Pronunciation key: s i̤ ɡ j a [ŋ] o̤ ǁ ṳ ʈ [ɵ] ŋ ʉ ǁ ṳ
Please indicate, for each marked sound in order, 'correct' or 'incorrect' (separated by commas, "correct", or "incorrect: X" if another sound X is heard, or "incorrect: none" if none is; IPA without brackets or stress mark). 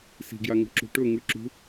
correct, correct